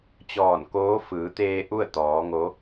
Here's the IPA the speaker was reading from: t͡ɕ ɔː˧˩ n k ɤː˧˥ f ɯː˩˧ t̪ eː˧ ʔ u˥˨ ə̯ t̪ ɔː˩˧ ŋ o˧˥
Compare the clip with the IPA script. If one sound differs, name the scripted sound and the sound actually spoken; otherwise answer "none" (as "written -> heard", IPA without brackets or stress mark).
ɤː˧˥ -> oː˧˥